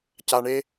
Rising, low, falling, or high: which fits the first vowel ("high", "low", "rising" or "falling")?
low